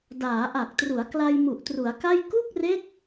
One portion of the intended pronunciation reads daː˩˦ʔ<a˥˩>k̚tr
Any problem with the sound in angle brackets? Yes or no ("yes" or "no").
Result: yes